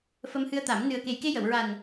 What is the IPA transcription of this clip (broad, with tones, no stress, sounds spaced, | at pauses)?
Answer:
f ə˧ m h ɨ˧ ə̯ t̪ a˨˩˦ m n ɨ˨˩ ə̯ k e˨˩ j k e˧ j ə˨˩˨ w ɹ a˨˩ n